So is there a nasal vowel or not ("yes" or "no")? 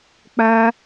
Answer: no